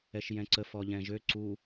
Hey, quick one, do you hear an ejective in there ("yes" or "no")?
no